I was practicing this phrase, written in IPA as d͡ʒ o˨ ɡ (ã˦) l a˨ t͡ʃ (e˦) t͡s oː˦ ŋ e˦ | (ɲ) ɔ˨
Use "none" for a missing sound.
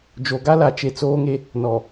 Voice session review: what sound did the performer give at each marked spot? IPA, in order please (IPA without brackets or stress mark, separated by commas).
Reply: a˦, e˨, n